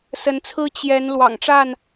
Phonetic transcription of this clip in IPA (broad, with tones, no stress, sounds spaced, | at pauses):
s ə˨˦ n t͡sʰ ɹ̩˦ t͡ɕ j ɛ˨˦ n l w ɑ̰˨˩ ŋ ʈ͡ʂ a˥˨ n